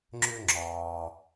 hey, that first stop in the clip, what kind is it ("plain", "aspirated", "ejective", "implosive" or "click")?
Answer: click